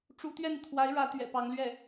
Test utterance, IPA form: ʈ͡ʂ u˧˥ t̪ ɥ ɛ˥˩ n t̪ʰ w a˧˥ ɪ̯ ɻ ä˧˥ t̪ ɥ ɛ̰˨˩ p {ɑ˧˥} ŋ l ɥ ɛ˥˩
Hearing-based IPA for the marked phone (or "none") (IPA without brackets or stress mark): ɑ˧˥